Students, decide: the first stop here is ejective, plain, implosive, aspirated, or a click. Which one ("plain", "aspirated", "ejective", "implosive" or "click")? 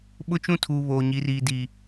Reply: implosive